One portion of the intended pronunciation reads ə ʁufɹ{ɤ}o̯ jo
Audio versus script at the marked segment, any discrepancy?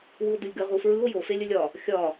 yes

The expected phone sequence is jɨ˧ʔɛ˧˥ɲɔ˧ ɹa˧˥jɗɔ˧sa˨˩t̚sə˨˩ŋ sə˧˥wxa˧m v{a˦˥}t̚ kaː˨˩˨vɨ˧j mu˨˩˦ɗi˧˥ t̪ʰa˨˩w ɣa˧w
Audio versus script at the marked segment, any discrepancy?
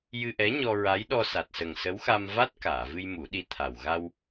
no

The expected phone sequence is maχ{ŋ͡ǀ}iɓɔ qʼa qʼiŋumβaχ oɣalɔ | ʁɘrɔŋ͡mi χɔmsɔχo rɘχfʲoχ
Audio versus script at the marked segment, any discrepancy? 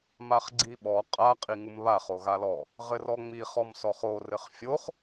yes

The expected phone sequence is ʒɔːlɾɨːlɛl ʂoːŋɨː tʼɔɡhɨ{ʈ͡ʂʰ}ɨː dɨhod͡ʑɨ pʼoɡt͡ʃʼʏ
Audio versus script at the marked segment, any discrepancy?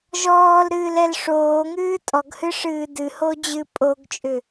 yes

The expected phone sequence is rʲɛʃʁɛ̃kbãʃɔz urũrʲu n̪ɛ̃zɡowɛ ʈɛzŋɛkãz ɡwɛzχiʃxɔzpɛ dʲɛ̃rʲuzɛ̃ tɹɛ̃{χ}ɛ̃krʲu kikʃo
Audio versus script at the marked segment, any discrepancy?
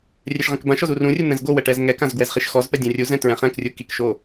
no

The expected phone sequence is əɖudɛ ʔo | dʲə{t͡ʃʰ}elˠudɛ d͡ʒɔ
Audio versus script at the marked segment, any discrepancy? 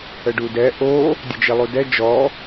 yes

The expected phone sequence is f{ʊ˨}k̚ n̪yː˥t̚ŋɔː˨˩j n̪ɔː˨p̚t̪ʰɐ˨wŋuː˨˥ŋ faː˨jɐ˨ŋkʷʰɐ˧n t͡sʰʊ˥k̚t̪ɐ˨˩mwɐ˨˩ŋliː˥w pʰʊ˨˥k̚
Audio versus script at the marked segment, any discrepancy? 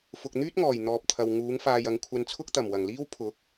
no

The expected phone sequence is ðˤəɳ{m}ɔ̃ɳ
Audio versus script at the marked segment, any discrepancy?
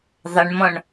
no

